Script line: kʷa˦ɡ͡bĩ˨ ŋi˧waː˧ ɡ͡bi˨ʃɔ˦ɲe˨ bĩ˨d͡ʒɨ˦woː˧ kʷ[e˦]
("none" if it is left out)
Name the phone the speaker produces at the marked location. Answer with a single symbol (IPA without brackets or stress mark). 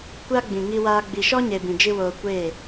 e˦˨